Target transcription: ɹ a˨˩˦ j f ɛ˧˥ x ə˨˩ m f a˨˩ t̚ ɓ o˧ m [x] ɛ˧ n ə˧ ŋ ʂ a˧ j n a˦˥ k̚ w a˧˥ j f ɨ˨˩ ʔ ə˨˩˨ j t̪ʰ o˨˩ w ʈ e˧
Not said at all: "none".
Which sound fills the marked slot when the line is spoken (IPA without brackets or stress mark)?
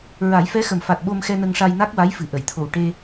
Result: x